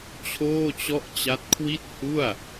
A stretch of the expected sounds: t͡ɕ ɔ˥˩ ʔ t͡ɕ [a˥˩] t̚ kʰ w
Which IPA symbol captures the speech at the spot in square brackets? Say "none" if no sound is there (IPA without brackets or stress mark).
a˦˥